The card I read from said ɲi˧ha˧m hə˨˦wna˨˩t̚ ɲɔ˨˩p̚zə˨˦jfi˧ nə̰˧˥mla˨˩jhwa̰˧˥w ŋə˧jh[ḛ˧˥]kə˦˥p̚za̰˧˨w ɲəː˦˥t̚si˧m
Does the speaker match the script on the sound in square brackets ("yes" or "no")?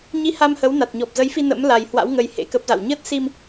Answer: yes